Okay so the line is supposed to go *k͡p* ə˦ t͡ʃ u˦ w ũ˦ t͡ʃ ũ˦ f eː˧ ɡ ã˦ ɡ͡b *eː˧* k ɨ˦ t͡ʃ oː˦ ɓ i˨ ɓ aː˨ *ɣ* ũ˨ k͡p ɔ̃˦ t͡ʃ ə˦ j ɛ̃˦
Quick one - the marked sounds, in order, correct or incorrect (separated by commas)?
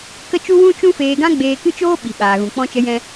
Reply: incorrect, correct, correct